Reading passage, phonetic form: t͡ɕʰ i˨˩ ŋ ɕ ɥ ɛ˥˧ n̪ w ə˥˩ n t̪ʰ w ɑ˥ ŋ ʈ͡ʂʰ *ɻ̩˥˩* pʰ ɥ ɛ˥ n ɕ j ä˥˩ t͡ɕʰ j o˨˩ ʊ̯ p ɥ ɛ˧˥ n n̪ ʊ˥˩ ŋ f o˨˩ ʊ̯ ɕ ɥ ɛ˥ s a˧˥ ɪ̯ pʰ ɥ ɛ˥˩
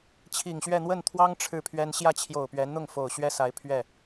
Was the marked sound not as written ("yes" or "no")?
no